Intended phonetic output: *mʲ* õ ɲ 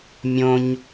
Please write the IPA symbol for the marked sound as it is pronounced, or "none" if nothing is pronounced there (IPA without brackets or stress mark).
mʲ